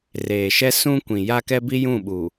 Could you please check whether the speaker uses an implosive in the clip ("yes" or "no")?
yes